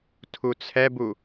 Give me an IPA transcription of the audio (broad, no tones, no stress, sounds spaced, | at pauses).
tʰ u t͡sʰ ɛ b u